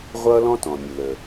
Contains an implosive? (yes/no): no